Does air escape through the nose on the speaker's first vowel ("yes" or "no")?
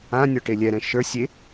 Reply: yes